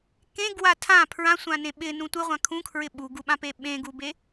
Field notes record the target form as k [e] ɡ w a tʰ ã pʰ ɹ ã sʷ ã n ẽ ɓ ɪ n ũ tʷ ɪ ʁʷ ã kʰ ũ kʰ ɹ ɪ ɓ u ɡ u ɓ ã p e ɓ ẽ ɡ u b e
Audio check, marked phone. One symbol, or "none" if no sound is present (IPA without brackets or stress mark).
ẽ